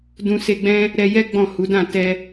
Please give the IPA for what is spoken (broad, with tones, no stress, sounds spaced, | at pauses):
d ũ˧ s e˧ ɡ͡b ɛ̃˦ | ɾ ɛ˧ j ɛ˦ ɡ͡b ɔ̃˦˨ h u˨˦ d ã˦˨ t ɛ˧